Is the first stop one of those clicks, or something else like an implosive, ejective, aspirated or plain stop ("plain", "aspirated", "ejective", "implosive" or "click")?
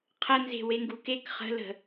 aspirated